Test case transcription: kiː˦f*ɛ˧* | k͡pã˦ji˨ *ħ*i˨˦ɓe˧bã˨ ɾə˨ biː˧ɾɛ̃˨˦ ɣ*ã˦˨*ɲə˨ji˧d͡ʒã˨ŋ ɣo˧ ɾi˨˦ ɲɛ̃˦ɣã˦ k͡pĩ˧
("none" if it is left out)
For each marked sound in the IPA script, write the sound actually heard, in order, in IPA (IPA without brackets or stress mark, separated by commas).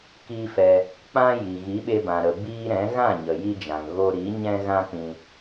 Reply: ɛ˧, ɣ, ã˦˨